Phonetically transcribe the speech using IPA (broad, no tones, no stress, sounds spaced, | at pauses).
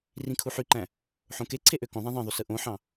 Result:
r ĩ kʰ u ħ y ǃ æ̃ | ħ õ k e ǀʰ e ʔ ø k õ ðˤ æ̃ ðˤ ẽ ðˤ y s ɯ ʔ õ ħ ɑ̃